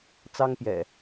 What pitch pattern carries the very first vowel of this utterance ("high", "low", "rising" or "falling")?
high